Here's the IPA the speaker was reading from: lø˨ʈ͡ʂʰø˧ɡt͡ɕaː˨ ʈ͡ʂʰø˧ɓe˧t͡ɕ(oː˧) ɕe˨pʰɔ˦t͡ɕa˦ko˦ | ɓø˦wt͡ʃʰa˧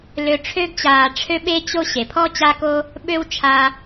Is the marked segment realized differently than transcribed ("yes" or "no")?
yes